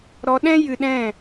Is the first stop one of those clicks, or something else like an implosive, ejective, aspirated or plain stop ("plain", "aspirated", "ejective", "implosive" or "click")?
implosive